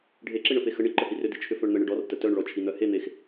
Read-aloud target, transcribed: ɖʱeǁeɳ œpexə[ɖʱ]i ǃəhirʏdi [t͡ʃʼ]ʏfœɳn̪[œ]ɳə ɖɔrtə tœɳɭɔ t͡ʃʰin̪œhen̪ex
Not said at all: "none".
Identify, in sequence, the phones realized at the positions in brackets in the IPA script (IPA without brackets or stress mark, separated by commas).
ɳ, t͡ʃʰ, ə